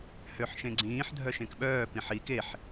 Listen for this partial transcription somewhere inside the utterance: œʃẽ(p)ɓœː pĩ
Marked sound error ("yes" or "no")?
yes